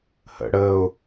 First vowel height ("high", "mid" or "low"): mid